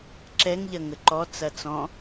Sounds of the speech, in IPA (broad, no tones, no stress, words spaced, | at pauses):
ǁɛŋʎɐ ŋəǃɔ t͡sɐt͡sɔ̃